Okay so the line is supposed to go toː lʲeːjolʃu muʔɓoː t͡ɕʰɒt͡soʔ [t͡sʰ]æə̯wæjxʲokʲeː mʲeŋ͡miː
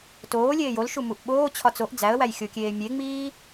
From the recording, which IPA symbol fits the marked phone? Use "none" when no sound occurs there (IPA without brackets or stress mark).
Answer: d͡z